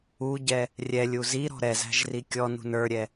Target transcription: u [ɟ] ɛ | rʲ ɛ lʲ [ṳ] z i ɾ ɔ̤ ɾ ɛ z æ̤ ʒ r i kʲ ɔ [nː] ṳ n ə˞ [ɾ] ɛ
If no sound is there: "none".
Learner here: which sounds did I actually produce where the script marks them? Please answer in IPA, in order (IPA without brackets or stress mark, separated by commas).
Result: ɟ, u, n, ɾʲ